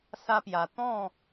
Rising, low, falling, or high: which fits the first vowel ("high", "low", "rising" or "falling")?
high